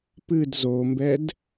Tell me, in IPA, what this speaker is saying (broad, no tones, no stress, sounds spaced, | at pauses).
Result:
p ɨ d z o m b ɛ d